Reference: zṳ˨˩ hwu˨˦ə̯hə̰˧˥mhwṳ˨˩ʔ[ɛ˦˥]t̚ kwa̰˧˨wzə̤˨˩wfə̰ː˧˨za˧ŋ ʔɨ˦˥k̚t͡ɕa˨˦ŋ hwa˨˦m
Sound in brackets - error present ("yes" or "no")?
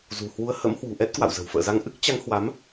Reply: no